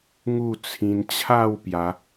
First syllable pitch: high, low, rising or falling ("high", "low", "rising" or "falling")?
falling